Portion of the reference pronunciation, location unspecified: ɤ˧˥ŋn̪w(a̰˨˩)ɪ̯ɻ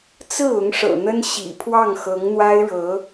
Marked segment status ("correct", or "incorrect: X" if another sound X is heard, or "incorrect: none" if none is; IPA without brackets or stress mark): incorrect: a˥